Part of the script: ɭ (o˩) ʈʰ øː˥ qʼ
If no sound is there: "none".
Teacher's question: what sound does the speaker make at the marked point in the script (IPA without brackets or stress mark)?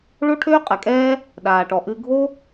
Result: o˥